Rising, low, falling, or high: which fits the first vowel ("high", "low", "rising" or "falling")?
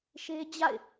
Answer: high